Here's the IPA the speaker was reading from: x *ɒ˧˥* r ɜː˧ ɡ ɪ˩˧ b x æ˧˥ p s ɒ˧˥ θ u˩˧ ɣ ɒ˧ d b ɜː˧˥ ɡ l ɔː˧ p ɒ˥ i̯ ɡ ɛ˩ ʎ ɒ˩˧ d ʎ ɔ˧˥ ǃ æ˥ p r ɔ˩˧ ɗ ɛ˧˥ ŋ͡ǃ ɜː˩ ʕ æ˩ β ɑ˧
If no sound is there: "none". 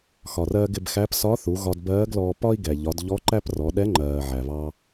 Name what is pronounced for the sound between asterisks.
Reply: ɒ˩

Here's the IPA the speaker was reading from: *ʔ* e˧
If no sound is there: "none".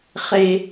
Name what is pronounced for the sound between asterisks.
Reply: χ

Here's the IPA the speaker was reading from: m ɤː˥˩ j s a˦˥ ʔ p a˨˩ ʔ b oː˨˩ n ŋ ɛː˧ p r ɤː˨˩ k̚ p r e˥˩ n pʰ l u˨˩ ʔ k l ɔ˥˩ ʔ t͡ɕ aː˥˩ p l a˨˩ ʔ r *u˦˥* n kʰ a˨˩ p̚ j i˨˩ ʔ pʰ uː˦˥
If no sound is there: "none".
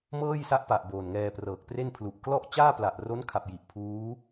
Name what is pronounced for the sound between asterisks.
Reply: o˦˥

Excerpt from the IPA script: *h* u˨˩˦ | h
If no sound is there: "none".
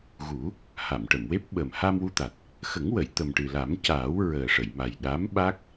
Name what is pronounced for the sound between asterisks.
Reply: ɣ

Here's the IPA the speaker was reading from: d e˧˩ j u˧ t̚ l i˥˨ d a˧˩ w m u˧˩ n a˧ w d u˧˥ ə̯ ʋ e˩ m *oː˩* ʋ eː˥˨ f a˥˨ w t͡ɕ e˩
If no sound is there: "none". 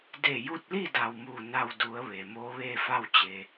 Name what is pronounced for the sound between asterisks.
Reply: oː˧˥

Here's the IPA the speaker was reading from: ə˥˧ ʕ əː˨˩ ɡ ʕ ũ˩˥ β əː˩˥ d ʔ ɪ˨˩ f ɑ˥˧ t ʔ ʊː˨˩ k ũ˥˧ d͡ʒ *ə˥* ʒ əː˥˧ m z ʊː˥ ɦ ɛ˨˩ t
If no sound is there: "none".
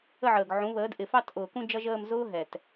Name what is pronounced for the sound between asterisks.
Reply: ʌ˥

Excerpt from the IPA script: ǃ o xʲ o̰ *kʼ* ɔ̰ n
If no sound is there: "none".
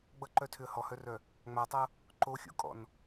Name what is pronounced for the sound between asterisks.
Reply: kʼ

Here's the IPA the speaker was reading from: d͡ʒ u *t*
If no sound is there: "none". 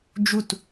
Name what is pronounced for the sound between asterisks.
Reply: t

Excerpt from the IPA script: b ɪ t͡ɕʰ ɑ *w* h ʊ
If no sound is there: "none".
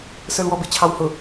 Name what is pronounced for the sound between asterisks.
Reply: w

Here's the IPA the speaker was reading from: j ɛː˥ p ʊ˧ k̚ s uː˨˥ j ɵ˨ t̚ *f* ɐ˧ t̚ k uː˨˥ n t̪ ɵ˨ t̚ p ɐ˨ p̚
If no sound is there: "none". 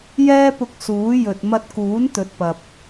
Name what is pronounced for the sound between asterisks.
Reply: m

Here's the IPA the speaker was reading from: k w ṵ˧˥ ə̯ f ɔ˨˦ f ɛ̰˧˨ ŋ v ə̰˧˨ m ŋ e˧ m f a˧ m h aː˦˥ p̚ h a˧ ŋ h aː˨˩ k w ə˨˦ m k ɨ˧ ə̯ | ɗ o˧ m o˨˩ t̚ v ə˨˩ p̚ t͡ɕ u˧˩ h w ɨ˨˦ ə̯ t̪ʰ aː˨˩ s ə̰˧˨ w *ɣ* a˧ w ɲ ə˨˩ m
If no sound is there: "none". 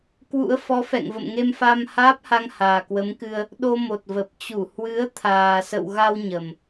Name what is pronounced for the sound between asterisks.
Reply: ɣ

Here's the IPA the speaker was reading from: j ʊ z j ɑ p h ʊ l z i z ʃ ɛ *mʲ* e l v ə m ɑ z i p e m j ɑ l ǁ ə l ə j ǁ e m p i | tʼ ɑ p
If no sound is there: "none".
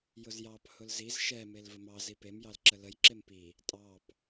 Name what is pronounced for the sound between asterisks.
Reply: m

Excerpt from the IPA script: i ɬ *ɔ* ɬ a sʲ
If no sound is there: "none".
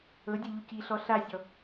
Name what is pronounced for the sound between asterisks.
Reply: ɔ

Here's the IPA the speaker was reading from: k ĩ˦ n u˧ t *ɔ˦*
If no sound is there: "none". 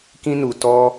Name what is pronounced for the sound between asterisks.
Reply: ɔ˦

